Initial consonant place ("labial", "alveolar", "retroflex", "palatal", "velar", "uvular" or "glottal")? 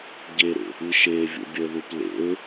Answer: palatal